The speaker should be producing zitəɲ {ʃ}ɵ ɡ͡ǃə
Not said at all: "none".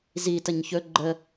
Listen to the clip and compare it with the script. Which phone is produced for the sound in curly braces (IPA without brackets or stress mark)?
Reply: ç